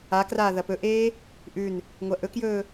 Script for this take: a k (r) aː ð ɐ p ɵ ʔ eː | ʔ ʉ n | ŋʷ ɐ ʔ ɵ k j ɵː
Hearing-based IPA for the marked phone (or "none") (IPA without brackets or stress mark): r